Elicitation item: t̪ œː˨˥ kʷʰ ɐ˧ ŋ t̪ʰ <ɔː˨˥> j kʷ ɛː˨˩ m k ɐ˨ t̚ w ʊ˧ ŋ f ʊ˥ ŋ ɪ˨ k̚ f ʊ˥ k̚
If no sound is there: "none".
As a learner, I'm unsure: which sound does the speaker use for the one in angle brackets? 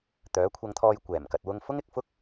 ɔː˧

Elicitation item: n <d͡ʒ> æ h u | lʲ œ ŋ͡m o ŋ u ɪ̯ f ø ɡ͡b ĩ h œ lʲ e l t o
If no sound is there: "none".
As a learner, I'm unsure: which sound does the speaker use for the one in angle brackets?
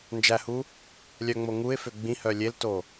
d͡ʒ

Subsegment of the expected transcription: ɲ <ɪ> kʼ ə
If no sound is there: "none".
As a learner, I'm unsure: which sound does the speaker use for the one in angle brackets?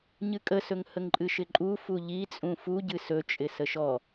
ɨ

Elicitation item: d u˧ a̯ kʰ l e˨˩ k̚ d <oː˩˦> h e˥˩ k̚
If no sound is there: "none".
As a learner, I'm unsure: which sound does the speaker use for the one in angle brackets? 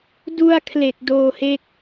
oː˧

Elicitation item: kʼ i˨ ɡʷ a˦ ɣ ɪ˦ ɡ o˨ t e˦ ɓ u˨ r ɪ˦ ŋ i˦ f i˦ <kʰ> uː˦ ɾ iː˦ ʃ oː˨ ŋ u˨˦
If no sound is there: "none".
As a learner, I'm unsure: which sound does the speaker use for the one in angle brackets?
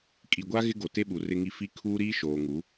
kʰ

